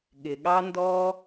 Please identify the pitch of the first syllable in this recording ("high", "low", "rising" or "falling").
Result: low